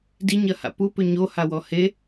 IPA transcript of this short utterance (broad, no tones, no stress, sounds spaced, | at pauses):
d i ɲ ɐ h a̰ p u p ʏ ɲ o h a w ɔ h e